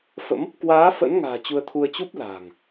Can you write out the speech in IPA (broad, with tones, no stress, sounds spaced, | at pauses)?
f ə̰˧˥ m | k w aː˨˦ f ə̰˧˥ n ŋ a̤ː˨˩ t͡ɕ u˧ ə̯ t̪ʰ u˧ ə̯ t͡ɕ u˦˥ p̚ l a̤ː˨˩ ŋ